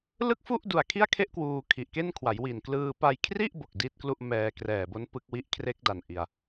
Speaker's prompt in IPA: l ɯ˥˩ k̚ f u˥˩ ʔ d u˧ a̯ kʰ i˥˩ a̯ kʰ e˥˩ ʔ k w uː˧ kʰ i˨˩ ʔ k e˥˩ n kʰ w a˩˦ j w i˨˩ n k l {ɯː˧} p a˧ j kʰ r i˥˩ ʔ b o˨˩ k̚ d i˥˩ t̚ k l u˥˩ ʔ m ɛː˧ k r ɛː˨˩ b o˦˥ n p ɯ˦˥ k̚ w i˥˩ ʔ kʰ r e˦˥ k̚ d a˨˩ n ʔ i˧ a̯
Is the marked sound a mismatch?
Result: no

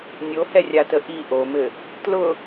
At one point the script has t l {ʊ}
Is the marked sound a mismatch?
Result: no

